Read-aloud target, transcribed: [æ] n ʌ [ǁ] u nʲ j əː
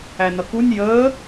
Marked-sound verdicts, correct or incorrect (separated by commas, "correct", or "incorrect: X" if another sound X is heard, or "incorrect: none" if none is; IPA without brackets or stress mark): correct, incorrect: k